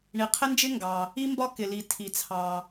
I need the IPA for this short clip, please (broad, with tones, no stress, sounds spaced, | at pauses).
ɳ i˩ qʰ ɪ˥ n d͡ʒ ɪ˥ ŋ ɡ ɑ˩ | i˥ m b ɒ˥ k ɪ˩ l i˩ tʰ i˩ t͡sʰ ɑ˩